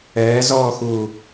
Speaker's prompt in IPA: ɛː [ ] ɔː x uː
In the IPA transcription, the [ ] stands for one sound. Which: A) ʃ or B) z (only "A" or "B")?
B